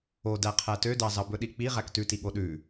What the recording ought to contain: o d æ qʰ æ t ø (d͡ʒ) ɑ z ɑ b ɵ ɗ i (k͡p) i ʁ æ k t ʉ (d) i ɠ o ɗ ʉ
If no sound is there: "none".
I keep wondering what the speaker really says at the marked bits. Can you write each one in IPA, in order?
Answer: d, k͡p, t

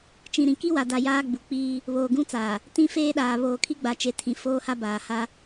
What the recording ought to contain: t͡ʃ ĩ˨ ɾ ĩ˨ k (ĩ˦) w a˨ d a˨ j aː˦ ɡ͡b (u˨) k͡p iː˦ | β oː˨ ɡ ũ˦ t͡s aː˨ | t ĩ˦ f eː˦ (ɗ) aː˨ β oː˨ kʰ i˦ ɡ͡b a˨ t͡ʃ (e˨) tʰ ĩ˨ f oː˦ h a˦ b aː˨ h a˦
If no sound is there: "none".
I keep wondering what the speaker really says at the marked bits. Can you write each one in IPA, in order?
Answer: i˦, u˨, ɗ, e˨

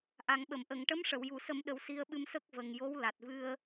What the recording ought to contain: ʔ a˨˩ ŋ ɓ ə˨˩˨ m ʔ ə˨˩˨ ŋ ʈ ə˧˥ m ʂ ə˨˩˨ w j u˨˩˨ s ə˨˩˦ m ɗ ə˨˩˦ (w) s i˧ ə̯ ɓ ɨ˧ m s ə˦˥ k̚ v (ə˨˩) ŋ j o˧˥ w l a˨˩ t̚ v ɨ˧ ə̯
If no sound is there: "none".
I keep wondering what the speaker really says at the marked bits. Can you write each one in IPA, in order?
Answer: w, ə˨˩

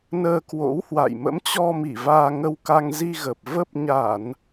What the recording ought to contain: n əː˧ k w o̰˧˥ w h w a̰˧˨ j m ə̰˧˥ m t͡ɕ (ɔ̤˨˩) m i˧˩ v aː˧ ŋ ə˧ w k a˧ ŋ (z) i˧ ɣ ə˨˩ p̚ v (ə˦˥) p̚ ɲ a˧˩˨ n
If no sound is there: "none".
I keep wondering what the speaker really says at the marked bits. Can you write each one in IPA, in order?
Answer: ɔ˧, z, ə˦˥

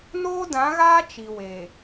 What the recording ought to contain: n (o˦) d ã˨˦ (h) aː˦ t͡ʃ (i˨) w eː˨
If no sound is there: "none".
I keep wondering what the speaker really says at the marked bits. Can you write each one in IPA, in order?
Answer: oː˦, ɣ, i˨

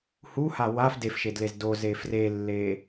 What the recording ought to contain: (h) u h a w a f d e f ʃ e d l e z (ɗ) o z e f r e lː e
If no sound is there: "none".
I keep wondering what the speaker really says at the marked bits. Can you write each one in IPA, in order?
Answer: h, d

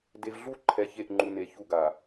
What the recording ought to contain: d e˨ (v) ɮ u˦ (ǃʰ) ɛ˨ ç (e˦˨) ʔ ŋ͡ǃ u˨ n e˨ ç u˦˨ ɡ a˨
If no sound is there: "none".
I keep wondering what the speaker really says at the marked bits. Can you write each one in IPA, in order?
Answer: v, ǃʰ, e˦˨

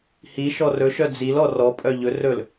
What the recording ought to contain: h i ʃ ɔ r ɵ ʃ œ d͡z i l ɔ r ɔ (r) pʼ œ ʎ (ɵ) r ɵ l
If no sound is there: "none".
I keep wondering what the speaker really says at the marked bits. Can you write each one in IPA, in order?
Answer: none, ɵ

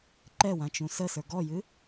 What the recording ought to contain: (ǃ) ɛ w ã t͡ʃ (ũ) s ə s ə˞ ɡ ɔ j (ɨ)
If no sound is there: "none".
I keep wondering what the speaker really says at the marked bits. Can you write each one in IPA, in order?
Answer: ǃ, ũ, ɨ

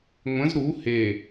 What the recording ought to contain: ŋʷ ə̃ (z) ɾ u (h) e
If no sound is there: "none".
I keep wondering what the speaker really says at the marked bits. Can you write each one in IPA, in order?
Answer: z, h

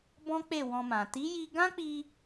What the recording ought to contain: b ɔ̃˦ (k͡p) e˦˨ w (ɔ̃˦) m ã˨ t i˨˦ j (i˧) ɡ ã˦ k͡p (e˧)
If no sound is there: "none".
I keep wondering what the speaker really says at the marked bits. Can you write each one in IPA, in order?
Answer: k͡p, ɔ̃˧, i˧, i˧

